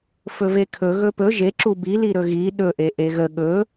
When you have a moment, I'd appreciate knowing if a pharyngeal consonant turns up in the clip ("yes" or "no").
no